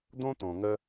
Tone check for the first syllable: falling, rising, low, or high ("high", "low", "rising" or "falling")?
high